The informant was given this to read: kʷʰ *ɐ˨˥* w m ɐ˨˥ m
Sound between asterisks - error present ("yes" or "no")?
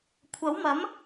no